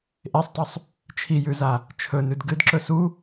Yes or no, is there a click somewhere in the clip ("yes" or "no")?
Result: yes